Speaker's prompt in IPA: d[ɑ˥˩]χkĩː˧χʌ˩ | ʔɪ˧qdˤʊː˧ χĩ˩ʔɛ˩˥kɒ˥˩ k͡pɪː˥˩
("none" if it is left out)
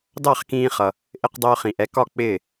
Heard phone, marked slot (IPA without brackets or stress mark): ɑ˥˩